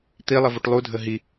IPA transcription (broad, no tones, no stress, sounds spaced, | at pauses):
t̪ i lˠ ə v u ʈ lˠ u dʱ ə ɦ i